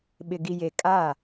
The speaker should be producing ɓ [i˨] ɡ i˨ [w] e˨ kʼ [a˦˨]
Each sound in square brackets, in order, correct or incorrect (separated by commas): incorrect, incorrect, correct